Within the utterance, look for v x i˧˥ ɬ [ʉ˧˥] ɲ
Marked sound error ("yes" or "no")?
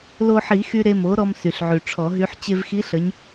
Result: yes